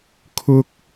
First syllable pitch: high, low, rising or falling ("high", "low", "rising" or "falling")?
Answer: high